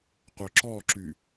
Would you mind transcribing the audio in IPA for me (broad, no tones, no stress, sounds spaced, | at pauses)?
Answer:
qʷ œ ǁ ɔ ǁ y